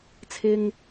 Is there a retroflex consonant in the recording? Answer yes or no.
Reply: no